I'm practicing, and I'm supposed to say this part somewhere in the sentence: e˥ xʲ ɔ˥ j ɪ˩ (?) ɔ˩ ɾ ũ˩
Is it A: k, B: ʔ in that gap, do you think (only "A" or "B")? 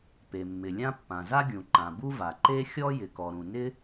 A